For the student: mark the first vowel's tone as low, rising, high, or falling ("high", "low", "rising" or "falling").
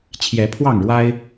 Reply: rising